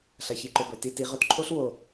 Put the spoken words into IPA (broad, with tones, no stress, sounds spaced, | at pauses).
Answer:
ɬ ɐ˨ ç i˨ ǃ o˨ b ɵ˨ t i˧ t i˨˦ ʁ ɵ˦ t ǃʰ o˦ ɬ w o˨